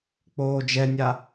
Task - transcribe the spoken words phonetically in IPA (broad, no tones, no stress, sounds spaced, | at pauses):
k͡p oː d͡ʒ ɛ nʲ a